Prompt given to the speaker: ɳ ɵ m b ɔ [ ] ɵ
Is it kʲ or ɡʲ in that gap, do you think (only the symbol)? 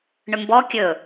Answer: kʲ